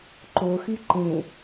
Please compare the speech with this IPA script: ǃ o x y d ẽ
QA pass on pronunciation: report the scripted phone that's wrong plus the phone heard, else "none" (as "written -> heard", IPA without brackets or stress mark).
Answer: d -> ǃ